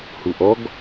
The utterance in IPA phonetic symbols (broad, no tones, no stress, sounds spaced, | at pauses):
h u ʔ ɔ ɡ